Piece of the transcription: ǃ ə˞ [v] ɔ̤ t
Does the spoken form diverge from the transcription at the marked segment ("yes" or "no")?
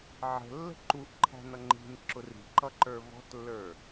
no